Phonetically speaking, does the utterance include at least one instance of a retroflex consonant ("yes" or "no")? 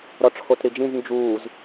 yes